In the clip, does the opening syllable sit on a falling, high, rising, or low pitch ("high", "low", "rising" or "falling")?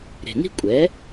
low